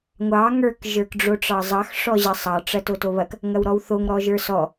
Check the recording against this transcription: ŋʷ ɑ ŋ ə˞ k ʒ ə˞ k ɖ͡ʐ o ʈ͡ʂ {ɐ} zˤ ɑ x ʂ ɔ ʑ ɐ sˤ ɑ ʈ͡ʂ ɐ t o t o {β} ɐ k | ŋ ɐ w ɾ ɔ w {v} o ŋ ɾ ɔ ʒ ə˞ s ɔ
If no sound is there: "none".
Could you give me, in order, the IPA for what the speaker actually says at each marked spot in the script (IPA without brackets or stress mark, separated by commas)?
ɑ, β, θ